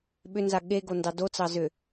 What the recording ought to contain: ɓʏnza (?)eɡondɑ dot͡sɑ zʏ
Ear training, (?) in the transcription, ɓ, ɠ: ɠ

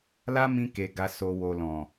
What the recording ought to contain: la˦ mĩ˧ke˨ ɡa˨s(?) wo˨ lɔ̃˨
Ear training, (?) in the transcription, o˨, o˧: o˨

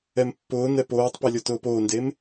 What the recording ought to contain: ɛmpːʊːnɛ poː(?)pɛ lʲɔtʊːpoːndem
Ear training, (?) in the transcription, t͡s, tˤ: tˤ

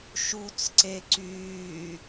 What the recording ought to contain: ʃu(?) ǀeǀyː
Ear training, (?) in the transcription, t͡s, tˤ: t͡s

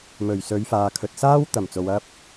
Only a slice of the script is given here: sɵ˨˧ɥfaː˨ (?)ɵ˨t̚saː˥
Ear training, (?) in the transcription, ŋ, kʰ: kʰ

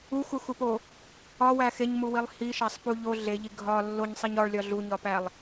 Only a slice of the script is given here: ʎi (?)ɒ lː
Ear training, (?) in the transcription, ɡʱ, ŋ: ɡʱ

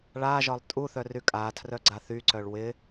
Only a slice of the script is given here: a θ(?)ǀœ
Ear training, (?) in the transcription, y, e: y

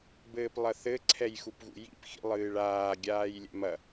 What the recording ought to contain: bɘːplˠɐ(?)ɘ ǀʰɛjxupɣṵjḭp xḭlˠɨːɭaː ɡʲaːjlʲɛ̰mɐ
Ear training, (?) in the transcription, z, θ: θ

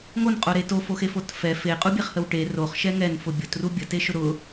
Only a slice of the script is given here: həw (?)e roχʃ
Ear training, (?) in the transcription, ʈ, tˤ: ʈ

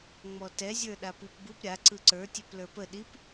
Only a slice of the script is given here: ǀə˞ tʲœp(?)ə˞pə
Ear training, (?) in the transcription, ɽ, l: l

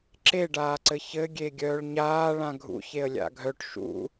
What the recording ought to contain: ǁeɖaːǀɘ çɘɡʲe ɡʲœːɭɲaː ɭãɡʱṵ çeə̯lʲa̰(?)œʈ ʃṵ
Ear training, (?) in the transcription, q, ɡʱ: ɡʱ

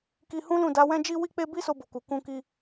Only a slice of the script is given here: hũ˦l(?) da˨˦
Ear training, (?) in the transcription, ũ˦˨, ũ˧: ũ˦˨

